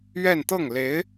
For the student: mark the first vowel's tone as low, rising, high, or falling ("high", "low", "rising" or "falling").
falling